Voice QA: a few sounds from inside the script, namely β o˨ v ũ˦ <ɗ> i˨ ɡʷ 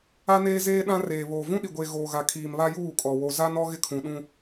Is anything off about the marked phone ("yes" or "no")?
no